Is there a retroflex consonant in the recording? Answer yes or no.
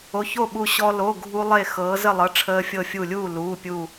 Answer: yes